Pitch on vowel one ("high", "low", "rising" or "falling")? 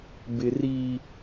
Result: low